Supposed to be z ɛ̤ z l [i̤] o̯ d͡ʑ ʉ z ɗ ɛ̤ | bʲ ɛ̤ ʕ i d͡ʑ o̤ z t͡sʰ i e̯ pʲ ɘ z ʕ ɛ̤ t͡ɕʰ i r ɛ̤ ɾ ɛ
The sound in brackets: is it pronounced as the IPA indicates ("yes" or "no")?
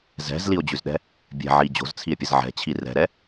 no